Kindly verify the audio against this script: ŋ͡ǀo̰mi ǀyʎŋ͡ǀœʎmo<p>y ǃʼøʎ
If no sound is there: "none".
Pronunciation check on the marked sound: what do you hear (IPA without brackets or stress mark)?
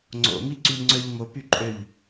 p